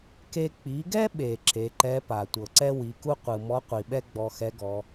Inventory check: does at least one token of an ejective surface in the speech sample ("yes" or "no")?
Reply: no